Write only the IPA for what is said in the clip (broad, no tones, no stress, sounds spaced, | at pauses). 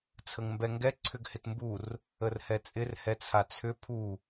t͡sʰ ə ŋ m b ɛ ŋ ɡ ɛ ǀʰ ʏ ɡ h ɪ t m b u r | ə r h ɛ t͡sʼ ɪ r h ɛ t͡sʰ a t͡sʰ ʏ pʰ u